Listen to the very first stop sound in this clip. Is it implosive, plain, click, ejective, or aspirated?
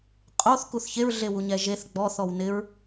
ejective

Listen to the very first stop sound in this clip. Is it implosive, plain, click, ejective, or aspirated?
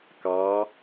plain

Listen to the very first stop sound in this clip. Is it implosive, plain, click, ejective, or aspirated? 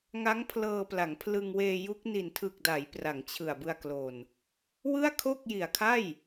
aspirated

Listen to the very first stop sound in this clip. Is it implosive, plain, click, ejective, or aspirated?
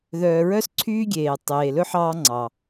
click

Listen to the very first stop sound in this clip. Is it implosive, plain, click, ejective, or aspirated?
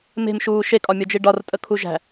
ejective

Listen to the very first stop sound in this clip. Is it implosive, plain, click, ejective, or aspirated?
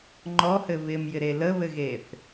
click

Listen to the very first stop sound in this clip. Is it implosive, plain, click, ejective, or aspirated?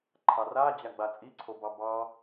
click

